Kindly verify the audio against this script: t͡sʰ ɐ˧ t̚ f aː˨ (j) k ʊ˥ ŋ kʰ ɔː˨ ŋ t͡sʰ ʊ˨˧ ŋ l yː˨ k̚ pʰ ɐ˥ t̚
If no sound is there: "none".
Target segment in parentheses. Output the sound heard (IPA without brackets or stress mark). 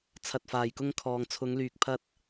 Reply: j